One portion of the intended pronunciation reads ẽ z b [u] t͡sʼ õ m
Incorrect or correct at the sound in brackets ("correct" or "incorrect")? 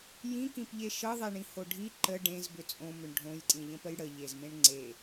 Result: incorrect